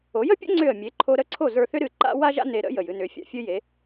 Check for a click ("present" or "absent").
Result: present